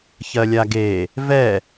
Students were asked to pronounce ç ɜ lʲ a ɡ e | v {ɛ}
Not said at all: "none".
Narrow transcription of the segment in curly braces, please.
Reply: ɛ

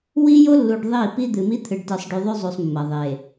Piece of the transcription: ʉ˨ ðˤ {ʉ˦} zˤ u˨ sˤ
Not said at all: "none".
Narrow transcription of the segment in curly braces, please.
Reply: ʉ˦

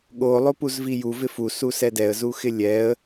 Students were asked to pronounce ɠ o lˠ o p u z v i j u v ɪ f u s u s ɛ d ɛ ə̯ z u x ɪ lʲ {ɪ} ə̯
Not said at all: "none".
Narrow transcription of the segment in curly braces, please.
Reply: ɛ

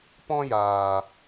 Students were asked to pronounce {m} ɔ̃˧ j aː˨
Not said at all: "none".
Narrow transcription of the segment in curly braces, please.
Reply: p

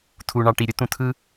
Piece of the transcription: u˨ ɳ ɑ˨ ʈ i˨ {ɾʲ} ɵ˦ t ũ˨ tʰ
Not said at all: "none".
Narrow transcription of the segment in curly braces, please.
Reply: ɾʲ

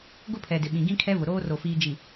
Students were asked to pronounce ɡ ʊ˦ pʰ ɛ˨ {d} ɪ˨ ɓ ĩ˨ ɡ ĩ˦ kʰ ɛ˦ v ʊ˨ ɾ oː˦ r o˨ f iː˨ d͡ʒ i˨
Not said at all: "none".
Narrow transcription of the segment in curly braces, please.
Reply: d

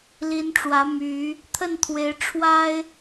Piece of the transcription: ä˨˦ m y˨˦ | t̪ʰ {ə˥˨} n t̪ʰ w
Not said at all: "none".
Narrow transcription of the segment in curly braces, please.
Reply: ə˥˨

